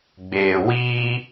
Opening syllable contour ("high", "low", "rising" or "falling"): low